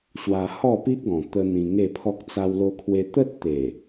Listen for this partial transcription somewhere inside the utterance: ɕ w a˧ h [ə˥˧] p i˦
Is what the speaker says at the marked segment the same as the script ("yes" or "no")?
no